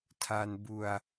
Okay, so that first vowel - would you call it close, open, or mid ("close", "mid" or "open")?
open